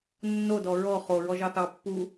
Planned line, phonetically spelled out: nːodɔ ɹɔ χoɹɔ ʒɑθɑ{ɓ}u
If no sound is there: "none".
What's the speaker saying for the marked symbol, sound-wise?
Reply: pː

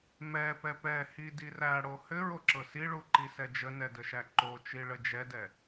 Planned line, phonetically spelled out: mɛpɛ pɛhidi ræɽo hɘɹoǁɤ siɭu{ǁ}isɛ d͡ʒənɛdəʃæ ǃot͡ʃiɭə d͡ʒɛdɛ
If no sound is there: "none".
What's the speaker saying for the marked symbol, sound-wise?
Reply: ǃ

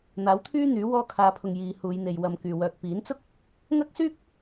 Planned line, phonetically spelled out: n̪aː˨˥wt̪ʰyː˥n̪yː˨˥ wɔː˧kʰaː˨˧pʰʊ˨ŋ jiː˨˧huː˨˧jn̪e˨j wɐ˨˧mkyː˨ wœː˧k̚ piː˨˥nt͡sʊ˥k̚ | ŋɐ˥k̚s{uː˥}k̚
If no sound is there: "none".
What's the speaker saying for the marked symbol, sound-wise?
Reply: yː˥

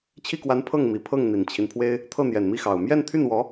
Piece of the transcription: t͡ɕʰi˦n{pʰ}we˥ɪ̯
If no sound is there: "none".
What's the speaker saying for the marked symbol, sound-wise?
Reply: pʰ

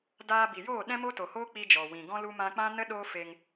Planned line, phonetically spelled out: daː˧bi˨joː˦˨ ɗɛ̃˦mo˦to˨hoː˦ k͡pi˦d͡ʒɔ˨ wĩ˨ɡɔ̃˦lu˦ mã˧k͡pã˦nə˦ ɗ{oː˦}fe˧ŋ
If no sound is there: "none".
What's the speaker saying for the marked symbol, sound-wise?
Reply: oː˦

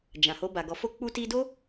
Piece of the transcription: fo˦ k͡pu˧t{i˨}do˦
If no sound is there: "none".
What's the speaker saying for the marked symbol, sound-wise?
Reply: i˧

